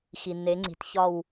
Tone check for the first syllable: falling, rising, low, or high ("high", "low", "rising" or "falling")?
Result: low